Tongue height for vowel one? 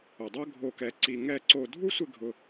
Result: high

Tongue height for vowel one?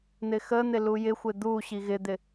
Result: high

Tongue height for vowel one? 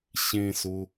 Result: mid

